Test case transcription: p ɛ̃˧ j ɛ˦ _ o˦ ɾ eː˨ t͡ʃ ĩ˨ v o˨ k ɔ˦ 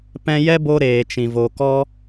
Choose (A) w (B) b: B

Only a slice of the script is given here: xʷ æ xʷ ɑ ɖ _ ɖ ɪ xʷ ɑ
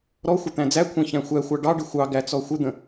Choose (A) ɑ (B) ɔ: A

